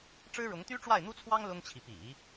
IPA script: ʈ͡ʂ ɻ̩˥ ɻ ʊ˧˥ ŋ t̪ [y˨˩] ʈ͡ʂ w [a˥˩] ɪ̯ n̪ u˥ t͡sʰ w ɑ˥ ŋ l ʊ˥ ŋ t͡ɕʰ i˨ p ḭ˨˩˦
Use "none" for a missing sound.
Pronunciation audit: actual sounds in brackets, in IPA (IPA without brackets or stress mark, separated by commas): y˥, a˥˩